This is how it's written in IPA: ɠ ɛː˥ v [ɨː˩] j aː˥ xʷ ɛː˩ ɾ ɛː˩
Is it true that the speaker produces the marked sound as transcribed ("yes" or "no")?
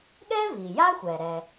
no